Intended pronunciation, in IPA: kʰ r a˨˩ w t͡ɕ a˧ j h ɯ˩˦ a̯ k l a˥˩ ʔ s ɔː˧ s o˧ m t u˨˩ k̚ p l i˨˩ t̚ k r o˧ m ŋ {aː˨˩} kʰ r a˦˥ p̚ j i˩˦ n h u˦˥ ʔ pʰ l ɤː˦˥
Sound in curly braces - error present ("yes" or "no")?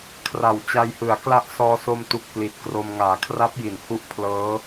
no